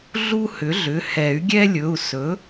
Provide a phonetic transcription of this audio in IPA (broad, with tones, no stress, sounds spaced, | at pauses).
ɮ u˦ h ʏ˩˥ ɮ ʏ˩˧˩ h ɛ˨˩˦ y̯ ɡʲ ɛ˦ lʲ ɵ˩˧˩ u̯ s ɵ˩˥